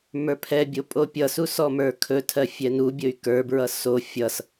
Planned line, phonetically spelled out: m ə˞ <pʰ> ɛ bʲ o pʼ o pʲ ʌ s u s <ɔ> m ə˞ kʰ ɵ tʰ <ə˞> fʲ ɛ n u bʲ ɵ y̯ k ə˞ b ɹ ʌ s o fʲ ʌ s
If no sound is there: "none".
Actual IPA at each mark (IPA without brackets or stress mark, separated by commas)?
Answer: pʰ, ɔ, ɜ